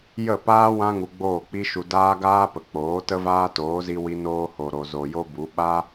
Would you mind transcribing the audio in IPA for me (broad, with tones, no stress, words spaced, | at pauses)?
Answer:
jə˦˨paː˦ wã˦ ŋu˧ɡ͡boː˦˨k͡pi˦ʃu˧ daː˦ɡaː˦pə˨k͡poː˨˦ tə˦vaː˦toː˨˦zi˧ wi˧noː˧ho˨ɾo˨ zo˨jo˦bu˨˦ ɓa˦